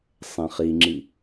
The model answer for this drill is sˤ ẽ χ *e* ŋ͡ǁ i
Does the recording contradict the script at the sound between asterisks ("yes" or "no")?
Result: yes